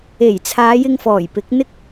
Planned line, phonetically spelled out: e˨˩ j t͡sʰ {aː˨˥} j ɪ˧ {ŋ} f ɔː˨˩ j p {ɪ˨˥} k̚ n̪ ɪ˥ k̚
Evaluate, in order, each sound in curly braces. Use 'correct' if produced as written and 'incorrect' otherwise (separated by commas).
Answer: incorrect, correct, correct